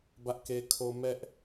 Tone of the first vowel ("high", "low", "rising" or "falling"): high